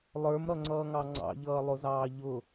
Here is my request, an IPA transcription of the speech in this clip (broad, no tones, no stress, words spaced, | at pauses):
lˠə˞mɾʌŋ͡ǀʌːŋɑ ŋ͡ǀɑ̰ʎʌːlˠʊzɑː ʎʊ